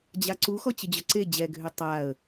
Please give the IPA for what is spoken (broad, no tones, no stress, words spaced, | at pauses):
d͡ʑaǀuxɔ t͡ɕəd͡ʑœǀe d͡ʑɛɡʱø tˤaə̯